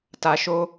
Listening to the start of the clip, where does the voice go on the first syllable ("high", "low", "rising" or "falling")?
low